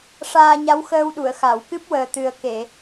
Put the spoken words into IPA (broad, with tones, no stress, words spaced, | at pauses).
ʂaː˧ɲa˧˥wxəː˧wɗu˨˩˨ə̯ xa˨˩˨wkɨ˦˥p̚ wəː˨˩t̪ɨ˨˩ə̯ke˨˩˨